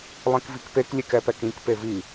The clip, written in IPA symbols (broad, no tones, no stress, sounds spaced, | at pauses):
lˠ ĩ k v i k p e k lʲ e k ɛ p ɛ k ĩ k p e v i